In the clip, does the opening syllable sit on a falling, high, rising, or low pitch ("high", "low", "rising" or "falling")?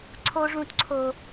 high